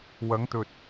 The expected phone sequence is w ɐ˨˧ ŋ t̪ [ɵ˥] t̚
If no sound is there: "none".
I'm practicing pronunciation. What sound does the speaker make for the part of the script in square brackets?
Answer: ɵ˨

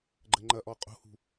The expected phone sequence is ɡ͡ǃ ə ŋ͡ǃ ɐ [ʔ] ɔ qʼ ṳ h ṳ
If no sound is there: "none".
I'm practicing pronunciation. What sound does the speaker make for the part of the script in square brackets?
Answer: ʔ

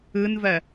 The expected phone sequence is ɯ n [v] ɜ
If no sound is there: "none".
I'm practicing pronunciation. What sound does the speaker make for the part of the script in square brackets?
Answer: v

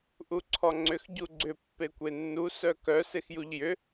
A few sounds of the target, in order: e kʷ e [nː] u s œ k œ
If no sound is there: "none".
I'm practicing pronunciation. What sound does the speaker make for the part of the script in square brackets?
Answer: nː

